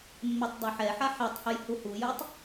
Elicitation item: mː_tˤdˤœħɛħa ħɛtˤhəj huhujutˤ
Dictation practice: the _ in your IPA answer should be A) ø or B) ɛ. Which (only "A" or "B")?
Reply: B